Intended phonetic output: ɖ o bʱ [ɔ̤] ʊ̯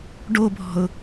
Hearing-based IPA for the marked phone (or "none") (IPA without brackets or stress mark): ɔ̤